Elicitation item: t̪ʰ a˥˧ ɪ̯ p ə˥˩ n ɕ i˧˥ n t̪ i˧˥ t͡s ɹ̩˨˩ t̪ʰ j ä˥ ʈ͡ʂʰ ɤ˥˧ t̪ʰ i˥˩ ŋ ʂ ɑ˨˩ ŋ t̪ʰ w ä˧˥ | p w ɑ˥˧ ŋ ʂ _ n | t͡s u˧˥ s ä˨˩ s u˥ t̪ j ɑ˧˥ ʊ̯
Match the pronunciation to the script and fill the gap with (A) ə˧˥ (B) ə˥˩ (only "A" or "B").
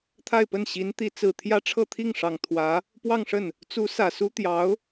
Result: B